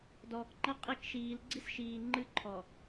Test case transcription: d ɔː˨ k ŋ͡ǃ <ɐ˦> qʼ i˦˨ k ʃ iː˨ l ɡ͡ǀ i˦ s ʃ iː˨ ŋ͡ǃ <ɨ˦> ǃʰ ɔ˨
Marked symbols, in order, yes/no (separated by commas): yes, yes